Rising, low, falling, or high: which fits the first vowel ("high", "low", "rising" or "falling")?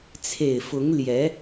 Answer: low